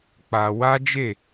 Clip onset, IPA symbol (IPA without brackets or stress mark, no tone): k͡p